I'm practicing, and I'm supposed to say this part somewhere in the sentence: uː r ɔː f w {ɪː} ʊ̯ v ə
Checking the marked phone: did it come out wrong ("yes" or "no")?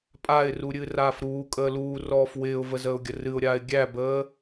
no